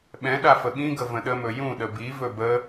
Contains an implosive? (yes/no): yes